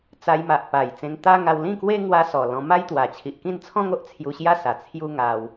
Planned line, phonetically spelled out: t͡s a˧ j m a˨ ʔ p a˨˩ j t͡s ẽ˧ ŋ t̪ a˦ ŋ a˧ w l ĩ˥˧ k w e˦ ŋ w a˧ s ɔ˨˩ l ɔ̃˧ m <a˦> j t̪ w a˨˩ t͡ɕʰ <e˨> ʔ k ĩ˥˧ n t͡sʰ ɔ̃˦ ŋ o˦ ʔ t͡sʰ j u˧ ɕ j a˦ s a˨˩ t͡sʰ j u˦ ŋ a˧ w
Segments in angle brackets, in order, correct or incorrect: correct, incorrect

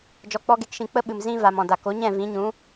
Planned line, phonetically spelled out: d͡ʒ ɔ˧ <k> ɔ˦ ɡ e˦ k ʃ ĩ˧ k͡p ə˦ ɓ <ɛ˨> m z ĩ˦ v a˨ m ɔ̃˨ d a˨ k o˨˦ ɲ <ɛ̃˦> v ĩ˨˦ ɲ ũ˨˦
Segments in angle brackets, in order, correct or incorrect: incorrect, incorrect, incorrect

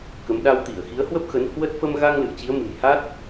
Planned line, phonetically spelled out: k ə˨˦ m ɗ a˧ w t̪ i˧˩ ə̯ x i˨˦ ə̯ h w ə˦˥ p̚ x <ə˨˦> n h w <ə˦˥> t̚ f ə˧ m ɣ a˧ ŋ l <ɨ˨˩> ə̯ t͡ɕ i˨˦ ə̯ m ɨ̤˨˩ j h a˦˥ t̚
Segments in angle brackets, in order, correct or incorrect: correct, correct, incorrect

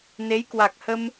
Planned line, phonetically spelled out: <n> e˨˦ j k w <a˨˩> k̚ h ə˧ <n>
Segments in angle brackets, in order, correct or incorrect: correct, correct, incorrect

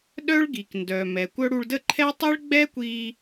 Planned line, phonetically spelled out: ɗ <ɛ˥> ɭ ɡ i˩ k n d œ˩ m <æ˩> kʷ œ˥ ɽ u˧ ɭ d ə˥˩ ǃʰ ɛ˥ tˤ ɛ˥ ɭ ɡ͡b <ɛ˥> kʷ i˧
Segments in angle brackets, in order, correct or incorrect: incorrect, incorrect, correct

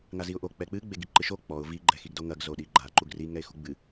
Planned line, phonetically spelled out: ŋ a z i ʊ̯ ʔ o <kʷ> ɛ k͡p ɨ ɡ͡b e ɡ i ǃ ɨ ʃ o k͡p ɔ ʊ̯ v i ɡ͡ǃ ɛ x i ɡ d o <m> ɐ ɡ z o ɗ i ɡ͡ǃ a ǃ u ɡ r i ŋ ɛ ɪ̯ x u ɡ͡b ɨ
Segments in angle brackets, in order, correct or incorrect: incorrect, incorrect

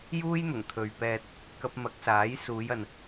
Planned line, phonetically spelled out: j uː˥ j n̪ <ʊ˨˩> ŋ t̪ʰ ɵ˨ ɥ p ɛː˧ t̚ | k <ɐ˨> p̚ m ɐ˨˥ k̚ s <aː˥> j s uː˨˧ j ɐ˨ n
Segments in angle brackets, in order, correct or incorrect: correct, incorrect, incorrect

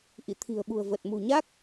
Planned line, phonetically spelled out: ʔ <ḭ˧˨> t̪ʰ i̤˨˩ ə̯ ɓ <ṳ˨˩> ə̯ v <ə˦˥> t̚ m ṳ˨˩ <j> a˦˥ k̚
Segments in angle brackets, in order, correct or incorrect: correct, correct, incorrect, incorrect

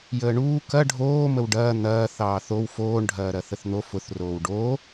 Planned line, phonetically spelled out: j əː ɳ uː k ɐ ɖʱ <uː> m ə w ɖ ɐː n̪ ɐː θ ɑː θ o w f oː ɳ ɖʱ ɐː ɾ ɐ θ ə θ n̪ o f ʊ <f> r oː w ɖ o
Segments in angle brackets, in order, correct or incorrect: incorrect, incorrect

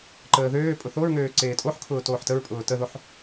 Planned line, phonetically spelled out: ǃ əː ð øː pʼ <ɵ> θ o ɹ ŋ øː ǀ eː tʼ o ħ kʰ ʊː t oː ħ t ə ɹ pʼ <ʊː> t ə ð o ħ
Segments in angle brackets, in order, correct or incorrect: incorrect, correct

